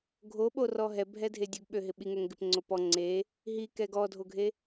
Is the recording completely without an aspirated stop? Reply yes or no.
yes